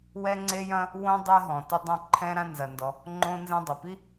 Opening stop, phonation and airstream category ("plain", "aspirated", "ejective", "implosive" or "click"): click